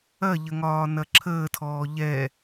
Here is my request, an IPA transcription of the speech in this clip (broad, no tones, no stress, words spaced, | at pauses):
ɐʎə ŋɒːnɐǁʰəːtʰɔː ʎɛ